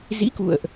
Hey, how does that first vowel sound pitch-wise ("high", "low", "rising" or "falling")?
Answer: rising